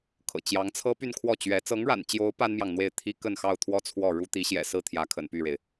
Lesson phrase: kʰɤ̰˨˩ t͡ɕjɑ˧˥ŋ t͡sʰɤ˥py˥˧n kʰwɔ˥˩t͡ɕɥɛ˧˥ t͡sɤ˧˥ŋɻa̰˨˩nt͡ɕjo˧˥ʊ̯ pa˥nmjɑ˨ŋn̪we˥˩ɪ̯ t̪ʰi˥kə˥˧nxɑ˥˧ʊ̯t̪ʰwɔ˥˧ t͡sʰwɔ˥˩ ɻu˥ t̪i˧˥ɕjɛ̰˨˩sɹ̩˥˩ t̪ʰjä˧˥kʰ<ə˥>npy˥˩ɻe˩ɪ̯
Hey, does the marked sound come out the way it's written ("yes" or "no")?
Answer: no